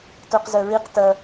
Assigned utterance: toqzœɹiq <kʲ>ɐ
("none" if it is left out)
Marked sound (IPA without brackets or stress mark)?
t